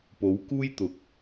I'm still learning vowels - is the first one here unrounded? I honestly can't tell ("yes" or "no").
no